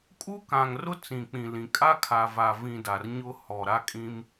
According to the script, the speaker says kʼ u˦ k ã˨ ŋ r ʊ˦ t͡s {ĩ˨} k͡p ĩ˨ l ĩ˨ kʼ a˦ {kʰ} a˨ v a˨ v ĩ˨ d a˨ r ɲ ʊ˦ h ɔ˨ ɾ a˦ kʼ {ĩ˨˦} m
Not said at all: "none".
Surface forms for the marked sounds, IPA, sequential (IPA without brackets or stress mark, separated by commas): ĩ˨, kʰ, ĩ˦